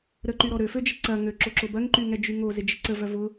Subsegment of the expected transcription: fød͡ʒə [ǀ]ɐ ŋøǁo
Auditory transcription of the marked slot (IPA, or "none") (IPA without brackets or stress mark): ǀ